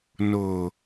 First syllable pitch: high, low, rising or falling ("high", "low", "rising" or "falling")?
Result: low